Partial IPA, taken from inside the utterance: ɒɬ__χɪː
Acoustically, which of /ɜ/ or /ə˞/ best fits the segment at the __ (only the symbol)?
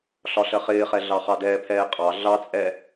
ɜ